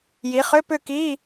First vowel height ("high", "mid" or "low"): high